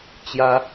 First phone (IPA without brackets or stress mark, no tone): t͡ɕ